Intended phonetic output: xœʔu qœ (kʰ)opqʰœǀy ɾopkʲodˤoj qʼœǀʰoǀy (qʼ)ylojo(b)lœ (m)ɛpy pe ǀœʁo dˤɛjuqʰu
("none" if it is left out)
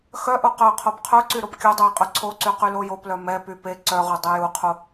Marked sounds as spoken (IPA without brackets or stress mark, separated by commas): qʰ, q, p, m